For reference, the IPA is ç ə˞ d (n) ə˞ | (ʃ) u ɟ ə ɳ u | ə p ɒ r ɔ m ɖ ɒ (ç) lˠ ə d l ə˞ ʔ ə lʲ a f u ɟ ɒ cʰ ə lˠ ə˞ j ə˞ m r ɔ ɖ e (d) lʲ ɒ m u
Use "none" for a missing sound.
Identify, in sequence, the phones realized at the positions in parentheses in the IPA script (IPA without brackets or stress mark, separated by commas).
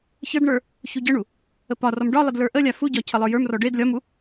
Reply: ɳ, ç, none, d